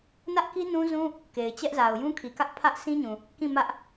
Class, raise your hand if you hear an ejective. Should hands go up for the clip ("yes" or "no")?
no